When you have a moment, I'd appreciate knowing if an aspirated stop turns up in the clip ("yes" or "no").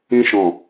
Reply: no